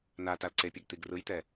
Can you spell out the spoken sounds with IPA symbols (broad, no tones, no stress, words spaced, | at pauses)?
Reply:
natal ǀepʲeɡ t̪iɡrɯjt̪ɛ